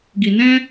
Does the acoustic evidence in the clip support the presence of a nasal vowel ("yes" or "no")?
yes